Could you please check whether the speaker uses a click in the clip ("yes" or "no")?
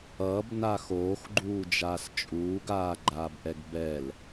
yes